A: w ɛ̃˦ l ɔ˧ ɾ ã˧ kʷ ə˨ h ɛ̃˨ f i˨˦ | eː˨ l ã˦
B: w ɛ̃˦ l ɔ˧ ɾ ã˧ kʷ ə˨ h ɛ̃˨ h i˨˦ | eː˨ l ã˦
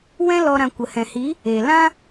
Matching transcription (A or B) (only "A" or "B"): B